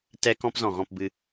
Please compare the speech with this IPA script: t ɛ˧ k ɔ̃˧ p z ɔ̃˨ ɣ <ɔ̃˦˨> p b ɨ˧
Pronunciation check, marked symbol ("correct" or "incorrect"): correct